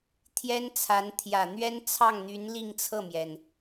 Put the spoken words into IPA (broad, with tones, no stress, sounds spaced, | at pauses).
t̪ʰ j ɛ˥ n t͡sʰ a˧˥ n t̪ʰ j ä˨˩ n̪ ɥ ɛ˥ n t͡sʰ ɑ˥˩ ŋ n̪ y˧˥ n l i˥˧ ŋ t͡sʰ ɤ˥˩ m j ɛ˩ n